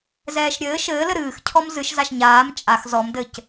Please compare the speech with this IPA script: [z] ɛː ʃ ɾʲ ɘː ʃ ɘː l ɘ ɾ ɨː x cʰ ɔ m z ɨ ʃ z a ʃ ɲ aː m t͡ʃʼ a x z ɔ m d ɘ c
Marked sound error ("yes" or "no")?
no